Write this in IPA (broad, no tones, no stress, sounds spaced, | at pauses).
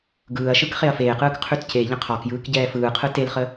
ɡ ɯː ɐ̯ ʃ ɯ k χ e ɐ̯ f eː q ɯː k qʰ ʉ t c e ʎ ə̃ qʰ ɒ k j ɯː k ɟ ɛː f ɯː qʰ ɯ t e l χ ə